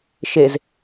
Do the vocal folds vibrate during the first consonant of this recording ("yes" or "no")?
no